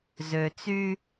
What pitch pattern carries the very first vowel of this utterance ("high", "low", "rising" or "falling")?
low